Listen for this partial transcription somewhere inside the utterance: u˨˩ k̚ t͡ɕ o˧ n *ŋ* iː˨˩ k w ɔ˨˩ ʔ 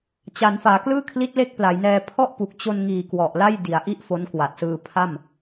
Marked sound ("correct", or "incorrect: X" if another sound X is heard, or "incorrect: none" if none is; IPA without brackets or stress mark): correct